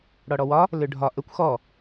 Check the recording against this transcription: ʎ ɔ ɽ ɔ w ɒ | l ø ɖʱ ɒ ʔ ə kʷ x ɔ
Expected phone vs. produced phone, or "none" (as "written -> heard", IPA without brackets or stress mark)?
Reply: ʎ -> ɽ